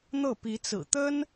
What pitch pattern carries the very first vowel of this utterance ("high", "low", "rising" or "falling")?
falling